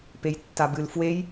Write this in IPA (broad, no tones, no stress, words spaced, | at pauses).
pejtːabɨl fwej